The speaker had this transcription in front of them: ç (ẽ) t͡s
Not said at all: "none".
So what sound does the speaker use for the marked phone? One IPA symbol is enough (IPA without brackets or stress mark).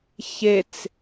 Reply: e